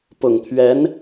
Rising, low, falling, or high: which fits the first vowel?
low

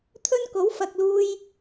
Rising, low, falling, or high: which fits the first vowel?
high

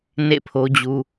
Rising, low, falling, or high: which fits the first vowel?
falling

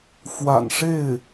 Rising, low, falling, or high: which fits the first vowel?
low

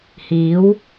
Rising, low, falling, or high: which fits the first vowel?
rising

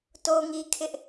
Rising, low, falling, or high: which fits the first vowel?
high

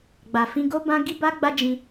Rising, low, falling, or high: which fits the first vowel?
low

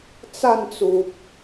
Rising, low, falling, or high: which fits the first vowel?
falling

